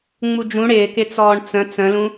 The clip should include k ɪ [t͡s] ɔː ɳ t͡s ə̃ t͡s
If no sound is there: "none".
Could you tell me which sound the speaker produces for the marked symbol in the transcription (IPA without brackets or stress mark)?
t͡s